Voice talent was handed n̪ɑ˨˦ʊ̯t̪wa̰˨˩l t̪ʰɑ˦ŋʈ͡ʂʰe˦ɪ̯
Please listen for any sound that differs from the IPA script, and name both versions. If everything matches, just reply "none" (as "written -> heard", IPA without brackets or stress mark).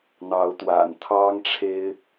l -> n